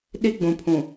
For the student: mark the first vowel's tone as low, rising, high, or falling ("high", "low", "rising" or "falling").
high